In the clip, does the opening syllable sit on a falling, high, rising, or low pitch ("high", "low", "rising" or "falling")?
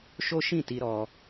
high